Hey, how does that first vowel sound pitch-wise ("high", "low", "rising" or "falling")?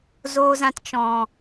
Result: low